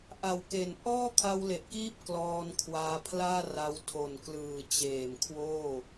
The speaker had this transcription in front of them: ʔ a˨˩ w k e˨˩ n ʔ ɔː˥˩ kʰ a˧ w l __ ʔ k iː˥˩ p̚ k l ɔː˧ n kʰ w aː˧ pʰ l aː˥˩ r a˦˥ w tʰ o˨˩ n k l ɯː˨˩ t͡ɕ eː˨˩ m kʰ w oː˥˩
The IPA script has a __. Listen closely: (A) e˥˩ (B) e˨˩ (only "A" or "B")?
B